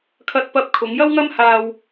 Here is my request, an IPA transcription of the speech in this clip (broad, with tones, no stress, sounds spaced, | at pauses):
kʰ ɐ˥ t̚ p ɐ˥ p̚ kʰ ʊ˨˥ ŋ j ɐ˥ w ŋ ɐ˥ m h aː˧ w